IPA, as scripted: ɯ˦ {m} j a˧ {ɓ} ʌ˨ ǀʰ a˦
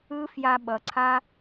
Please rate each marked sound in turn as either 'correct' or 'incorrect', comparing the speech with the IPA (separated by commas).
incorrect, correct